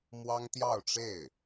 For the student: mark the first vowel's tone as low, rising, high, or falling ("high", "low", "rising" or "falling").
high